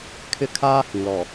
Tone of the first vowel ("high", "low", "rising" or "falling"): high